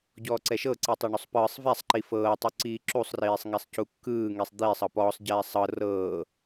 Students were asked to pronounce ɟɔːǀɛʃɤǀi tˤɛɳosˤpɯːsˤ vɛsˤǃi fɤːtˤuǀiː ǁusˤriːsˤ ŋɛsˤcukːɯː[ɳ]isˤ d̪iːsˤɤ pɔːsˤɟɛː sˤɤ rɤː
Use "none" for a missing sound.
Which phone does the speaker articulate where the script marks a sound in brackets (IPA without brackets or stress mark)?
ŋ